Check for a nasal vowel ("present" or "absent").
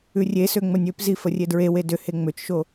absent